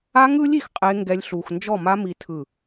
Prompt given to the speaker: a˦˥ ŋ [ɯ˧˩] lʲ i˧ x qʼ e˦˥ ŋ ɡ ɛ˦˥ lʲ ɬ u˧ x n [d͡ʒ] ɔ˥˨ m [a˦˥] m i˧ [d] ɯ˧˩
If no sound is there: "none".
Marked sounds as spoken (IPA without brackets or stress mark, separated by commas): ɯ˦˥, d͡ʒ, a˦˥, tʰ